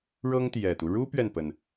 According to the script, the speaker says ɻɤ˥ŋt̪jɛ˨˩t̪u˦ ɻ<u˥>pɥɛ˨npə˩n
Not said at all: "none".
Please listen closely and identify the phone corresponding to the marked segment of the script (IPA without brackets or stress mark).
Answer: u˥